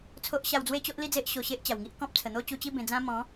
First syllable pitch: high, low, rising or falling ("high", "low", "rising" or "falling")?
high